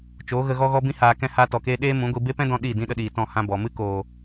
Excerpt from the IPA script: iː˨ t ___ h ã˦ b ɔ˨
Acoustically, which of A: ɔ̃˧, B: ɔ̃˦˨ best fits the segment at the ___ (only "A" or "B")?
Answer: B